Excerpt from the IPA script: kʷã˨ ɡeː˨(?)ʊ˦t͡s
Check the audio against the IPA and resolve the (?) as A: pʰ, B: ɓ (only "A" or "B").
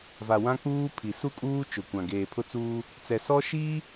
A